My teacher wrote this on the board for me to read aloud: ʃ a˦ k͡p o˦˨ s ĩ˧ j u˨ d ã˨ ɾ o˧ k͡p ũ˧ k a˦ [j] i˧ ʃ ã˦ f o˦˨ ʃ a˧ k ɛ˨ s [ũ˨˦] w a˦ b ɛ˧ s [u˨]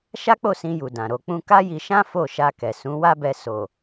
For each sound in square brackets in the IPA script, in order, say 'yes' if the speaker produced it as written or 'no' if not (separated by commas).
yes, yes, no